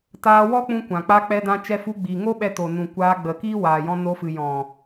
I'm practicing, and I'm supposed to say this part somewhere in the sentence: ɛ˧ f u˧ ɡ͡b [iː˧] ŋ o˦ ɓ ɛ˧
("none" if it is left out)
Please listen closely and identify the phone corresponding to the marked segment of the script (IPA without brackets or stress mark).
iː˨